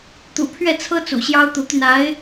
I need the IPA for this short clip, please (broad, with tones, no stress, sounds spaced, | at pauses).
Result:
t̪ ṵ˨˩ pʰ ɥ ɛ˥˩ t͡sʰ ɤ˥ t͡s ṵ˨˩ ɕ j ɑ˥ ʊ̯ t̪ u˧˥ t̪ y˧ n a˧˥ ɪ̯